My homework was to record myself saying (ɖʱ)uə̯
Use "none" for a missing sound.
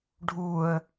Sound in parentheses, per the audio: ɖʱ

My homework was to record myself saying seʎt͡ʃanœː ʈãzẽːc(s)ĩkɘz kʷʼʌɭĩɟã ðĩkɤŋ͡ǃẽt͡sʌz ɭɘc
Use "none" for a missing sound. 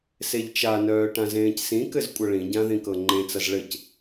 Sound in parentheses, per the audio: s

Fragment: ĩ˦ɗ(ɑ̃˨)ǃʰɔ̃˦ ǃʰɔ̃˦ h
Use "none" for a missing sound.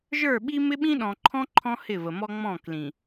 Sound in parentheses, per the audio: ɔ̃˨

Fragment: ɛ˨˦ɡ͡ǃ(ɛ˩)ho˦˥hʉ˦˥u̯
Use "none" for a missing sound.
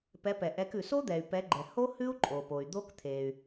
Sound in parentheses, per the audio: ɛ˩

